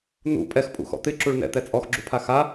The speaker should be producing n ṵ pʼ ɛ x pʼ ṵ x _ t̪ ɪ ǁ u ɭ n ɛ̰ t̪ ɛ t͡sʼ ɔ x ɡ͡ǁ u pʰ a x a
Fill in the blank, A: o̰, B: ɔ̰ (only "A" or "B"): B